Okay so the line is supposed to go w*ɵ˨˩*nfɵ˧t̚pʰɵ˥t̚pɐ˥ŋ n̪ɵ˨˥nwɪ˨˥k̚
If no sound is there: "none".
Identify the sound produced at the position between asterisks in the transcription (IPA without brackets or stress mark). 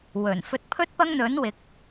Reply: ɵ˨˩